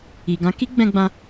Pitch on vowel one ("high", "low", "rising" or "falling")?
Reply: low